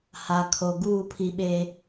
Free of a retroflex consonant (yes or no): yes